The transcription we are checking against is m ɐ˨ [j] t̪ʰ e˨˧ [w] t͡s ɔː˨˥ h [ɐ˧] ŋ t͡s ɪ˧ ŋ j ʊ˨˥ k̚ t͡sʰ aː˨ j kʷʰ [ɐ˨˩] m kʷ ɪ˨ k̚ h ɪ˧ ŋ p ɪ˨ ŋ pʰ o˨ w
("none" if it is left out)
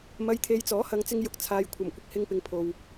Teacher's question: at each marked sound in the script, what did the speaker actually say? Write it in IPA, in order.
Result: j, j, ɐ˨˧, ɐ˨˩

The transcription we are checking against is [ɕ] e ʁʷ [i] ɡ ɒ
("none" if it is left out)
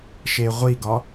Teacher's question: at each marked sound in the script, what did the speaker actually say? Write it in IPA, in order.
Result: ʃ, i

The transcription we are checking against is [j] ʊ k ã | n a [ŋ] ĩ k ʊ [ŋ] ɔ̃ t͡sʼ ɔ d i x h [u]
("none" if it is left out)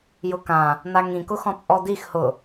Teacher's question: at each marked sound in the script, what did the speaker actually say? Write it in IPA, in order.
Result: j, ŋ, x, ʊ

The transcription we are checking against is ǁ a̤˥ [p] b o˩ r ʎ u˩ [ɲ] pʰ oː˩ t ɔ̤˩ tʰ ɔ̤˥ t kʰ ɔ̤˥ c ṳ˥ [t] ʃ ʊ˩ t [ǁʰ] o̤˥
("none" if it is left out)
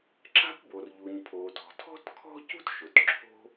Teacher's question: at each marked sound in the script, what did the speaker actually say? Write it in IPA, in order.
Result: p, ɲ, t, ǁʰ

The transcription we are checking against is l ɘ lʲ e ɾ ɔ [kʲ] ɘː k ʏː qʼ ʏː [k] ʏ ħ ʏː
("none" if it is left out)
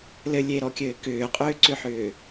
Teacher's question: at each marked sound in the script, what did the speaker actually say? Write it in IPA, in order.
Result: kʲ, ǀ

